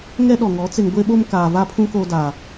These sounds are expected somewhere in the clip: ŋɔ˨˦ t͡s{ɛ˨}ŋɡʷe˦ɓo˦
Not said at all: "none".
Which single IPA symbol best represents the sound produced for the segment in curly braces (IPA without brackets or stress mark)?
ɪ˨